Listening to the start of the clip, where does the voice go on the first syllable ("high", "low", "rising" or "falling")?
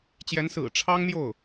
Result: rising